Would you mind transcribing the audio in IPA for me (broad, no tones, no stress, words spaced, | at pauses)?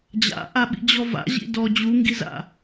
d͡ʑa̰ ʔaɓḭd͡ʑɔva̰ ʑḭdɔ d͡ʑuŋɡiza̰